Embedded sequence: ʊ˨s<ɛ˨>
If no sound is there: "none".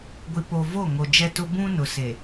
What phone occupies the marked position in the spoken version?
e˨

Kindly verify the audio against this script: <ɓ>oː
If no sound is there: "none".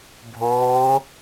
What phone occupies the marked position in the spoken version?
bʱ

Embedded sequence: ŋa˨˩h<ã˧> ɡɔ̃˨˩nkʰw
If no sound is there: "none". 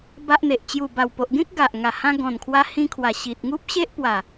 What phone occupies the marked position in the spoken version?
ã˧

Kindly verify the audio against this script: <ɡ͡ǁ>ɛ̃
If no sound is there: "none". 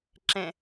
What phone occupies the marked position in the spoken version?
ǁ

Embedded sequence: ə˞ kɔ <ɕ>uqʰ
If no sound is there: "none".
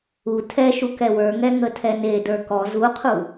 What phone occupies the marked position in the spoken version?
z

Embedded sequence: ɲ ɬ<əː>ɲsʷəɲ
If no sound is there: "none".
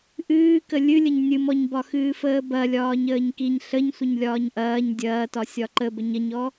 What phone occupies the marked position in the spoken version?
ə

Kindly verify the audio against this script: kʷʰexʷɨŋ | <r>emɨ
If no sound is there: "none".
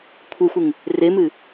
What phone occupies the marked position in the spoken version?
r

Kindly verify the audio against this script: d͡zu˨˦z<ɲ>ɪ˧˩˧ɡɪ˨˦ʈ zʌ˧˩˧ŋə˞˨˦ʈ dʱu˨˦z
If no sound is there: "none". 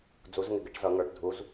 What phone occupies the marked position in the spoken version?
ŋ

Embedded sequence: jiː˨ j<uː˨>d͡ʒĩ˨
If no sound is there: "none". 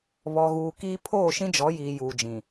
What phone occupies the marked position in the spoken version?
uː˨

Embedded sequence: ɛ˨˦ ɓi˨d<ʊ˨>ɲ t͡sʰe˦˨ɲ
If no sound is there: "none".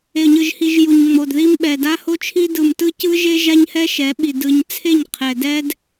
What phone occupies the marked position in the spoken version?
ɯ˨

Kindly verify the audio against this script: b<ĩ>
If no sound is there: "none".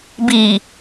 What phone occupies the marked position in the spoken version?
i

